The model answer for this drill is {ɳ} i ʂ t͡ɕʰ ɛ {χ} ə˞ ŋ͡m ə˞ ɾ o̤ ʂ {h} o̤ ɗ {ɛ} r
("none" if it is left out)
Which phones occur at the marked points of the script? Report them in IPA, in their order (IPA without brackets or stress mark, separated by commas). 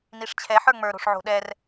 n, ħ, ʕ, ɛ